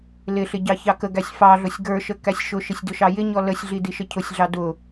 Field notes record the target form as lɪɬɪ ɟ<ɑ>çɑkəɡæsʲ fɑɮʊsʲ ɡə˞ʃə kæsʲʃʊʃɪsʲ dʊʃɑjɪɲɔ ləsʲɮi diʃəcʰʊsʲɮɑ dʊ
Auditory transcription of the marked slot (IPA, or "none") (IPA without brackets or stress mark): ɑ